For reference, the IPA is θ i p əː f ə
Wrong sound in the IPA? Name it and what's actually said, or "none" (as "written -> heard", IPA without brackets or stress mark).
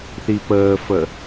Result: none